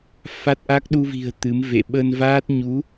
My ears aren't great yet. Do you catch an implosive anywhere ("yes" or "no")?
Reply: yes